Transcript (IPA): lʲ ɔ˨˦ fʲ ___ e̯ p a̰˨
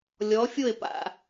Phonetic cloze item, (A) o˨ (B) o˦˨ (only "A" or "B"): B